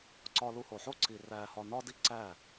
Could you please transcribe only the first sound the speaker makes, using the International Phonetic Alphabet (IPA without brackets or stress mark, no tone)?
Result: ǀ